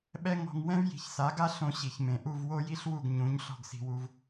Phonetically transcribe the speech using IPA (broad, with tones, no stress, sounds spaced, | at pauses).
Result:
ɓ ɛ˥ ŋ ɔ̤˧ ŋ w ɛ̃˥ v j i̤˩˥ ç s a˩˥ ɡ a˥ ɬ õ˧ ɕ i˩ ç m ẽ˩ ʔ u˥˩ v w o˥ j i˥ ɬ w u˥˩ ɡ ɲ ũ˩˥ ɲ ɬ ɔ̤˥˩ ɡ s i̤˧ w u˧ v